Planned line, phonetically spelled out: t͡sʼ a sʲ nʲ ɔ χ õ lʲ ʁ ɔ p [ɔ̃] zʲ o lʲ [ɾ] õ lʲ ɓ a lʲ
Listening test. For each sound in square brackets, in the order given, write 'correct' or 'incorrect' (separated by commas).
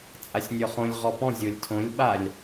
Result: correct, incorrect